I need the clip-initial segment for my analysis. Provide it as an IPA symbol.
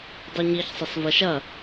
dˤ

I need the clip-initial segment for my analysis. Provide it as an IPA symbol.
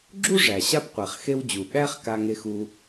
ɡ͡ǁ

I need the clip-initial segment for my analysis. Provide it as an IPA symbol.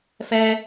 f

